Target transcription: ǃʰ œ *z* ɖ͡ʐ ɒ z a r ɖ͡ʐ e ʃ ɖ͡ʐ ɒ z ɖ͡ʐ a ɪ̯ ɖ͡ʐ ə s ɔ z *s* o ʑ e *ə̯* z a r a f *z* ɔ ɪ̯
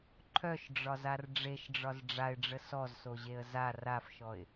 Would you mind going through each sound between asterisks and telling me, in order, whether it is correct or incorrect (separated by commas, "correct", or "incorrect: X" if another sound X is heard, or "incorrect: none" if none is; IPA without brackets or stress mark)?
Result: incorrect: ʃ, correct, correct, incorrect: ʃ